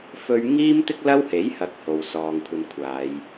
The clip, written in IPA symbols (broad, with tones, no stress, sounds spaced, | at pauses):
f ɵ˥ ɥ ŋ iː˥ m t̪ ɪ˥ k̚ l ɐ˥ w h e˨˥ j h ɐ˨˥ k̚ h o˨ w s ɔː˨ ŋ kʷʰ ɐ˧ n kʷʰ aː˨˧ j